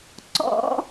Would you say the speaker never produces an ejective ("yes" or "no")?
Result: yes